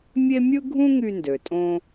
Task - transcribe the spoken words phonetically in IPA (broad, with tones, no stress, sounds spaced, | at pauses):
mʲ e˥ mʲ ɯ˥ ɡʱ ũ˥ ŋ y˧ n d ø˩ tʼ õ˧